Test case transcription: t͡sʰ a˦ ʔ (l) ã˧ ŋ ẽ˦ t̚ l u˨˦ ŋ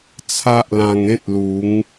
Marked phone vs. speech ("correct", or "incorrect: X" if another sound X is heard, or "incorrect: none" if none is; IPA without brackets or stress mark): correct